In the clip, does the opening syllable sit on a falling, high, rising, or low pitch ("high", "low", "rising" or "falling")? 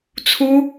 high